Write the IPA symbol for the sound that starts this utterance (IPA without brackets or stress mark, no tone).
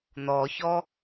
n̪